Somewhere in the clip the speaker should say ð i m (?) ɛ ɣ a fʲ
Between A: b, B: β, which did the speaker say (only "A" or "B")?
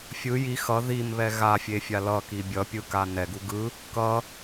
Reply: B